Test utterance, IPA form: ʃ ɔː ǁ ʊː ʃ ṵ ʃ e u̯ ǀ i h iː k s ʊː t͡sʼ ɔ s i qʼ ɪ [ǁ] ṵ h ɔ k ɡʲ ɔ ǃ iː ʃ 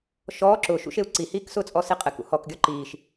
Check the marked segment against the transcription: incorrect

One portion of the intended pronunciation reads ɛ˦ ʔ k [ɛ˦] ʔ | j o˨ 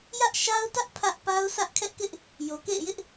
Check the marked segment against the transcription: incorrect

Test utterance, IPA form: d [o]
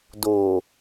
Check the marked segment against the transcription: correct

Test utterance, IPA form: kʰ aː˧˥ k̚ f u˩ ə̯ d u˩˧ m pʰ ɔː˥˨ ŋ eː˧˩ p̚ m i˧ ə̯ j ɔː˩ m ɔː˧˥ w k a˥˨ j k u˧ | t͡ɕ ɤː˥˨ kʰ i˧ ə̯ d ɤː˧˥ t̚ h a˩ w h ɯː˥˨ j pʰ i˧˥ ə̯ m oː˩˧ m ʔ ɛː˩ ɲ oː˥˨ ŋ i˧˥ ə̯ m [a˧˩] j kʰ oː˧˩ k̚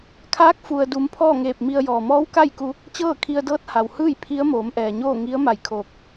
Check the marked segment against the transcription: correct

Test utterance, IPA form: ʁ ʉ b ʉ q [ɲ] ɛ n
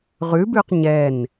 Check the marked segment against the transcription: correct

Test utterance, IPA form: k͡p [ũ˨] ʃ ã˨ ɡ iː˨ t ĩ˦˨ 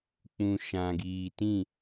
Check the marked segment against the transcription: correct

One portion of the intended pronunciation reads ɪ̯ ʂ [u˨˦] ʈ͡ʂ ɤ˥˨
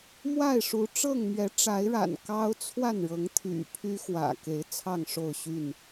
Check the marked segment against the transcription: correct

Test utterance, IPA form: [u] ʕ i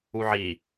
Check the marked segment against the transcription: correct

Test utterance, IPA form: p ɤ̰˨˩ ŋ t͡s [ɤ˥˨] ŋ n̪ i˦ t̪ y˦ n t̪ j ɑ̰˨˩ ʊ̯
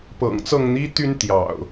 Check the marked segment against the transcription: correct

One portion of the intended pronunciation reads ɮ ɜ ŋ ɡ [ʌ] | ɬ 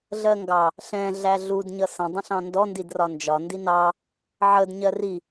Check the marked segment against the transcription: incorrect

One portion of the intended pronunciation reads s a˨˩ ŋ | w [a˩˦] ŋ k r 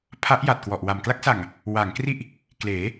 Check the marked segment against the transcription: correct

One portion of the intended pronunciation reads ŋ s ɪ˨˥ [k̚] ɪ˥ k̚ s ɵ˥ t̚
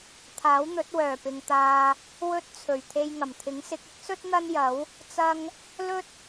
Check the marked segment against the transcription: correct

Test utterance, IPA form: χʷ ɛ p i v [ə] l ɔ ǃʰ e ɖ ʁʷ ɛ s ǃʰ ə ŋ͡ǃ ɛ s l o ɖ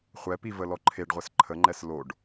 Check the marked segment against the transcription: correct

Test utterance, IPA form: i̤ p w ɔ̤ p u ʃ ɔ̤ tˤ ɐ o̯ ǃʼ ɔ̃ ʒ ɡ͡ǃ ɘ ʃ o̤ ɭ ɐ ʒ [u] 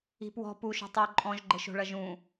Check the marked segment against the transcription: incorrect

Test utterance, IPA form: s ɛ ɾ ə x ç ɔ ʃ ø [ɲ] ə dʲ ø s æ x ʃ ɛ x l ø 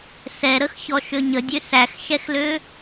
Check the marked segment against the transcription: correct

